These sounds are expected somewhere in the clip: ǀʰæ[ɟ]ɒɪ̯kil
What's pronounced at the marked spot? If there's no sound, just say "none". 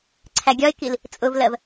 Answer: ɡʲ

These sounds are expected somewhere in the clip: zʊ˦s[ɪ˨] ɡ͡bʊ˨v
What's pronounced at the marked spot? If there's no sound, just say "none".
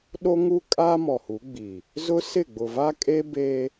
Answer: ɪ˦˨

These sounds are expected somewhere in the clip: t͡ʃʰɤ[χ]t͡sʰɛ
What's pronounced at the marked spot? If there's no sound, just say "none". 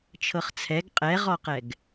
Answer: χ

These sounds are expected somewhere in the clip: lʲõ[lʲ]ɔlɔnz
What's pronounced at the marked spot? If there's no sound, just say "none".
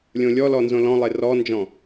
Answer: lʲ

